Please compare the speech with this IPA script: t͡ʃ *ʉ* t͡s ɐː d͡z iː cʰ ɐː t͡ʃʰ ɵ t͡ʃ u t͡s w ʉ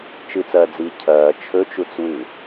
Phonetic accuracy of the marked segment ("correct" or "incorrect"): incorrect